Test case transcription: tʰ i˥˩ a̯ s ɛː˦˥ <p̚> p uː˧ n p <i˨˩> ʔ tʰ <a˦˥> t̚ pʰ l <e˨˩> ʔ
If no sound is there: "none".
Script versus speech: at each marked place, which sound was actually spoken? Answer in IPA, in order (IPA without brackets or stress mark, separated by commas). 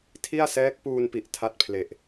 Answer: k̚, i˨˩, a˦˥, e˨˩